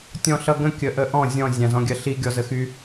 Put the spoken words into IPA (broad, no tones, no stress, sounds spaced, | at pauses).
tʲ ɔ̃ ɬ ʌ ɡ ə̃ kʲ ə ʔ ə ʔ ɔ̃ zʲ ɔ̃ zʲ ã z ɔ̃ ɡʲ ɜ ɬ i ɡʲ ɔ z ə x y